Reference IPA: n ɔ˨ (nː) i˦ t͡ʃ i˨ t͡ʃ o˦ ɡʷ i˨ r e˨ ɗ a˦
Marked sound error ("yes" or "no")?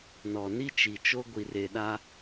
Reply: yes